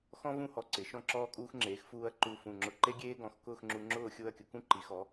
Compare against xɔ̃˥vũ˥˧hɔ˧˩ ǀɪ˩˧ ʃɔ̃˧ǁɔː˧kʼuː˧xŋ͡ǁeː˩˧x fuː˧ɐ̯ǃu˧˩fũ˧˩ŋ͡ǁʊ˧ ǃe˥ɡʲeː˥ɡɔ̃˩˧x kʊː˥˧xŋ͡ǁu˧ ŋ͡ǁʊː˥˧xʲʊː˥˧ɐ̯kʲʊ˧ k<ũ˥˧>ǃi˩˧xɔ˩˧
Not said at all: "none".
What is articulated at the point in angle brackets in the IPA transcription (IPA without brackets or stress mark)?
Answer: ũ˥˧